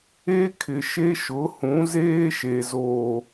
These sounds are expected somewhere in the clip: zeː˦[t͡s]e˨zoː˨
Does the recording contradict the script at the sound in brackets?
yes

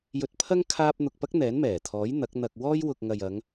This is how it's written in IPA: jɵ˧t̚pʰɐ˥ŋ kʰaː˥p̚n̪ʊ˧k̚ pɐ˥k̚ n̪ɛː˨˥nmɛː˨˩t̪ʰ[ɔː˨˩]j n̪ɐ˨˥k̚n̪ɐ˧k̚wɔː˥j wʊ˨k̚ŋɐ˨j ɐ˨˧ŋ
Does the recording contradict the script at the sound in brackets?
yes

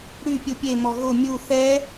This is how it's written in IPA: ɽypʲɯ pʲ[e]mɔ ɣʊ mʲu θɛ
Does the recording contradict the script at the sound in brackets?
no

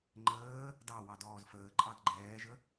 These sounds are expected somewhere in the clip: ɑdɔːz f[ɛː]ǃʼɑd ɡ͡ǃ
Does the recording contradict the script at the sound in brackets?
yes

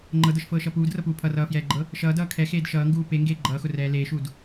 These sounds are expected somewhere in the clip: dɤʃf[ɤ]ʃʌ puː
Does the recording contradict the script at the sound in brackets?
yes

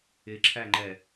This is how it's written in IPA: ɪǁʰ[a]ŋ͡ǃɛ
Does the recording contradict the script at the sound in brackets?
yes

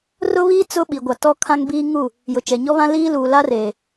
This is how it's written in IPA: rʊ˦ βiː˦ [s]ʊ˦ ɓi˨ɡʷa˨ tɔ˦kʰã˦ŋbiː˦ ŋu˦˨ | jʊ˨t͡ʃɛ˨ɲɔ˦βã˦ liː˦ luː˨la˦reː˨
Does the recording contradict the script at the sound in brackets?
yes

